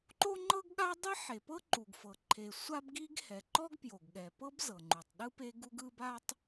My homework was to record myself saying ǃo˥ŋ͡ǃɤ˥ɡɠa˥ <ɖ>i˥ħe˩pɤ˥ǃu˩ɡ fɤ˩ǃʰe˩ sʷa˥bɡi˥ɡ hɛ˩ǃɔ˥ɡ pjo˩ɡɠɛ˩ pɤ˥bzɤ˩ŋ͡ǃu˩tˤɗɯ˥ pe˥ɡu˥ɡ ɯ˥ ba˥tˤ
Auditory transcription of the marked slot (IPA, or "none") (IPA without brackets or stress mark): dˤ